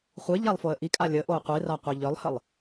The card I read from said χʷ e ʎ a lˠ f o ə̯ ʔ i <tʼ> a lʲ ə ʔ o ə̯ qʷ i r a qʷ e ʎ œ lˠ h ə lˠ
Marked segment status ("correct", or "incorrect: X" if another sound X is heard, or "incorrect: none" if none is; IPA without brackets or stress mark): incorrect: kʼ